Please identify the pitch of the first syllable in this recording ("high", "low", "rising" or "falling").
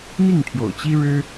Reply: falling